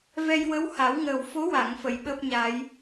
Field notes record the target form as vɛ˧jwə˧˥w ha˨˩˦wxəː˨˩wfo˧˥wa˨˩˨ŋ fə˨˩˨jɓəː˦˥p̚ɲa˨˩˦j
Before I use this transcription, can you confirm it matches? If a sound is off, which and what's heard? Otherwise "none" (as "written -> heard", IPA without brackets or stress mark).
x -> ŋ